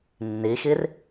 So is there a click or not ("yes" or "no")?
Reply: no